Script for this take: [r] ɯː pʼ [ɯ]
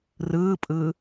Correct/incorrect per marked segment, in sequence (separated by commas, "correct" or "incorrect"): correct, correct